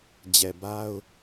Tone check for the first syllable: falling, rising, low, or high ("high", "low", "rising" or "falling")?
low